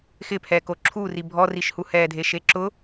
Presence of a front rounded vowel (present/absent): absent